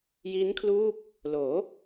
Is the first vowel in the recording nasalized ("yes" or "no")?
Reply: no